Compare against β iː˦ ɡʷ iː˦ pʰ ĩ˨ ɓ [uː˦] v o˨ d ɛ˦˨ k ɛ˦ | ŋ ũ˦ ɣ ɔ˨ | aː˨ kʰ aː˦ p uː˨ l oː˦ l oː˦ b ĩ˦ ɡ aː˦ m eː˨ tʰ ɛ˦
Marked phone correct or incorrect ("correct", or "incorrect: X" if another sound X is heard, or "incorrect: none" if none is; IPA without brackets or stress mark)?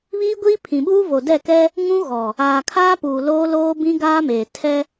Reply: correct